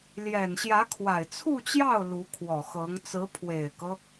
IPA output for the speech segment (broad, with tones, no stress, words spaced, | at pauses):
ljɛ˨˩nɕjä˧˥kʰwa˨˩ɪ̯ t͡sʰu˥˧t͡ɕjɑ˥˩ʊ̯ lu˧˥kʰwɔ˨˩xɤ˧˥ŋ t͡sɹ̩˧˥pʰwe˨˩ɪ̯kɤ˦